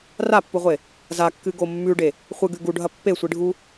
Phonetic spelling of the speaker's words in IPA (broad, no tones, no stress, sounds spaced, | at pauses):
r a pː u ʁʷ e | z a kː ɨ ɡ o mː ʉ ɖ e | χʷ ɨ ɡ ʉ ɡ u ɖʱ ɐ pː e sʷ i ɖʱ u